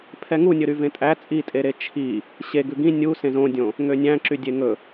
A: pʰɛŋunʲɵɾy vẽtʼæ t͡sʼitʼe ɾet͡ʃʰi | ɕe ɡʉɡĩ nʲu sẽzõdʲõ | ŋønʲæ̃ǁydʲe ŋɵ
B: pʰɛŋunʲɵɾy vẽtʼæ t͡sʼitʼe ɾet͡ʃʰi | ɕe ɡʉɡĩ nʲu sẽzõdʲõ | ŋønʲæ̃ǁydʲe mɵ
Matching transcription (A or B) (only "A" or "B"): A